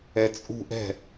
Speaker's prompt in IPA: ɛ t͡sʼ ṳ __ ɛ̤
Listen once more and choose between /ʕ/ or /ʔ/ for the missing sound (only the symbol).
ʔ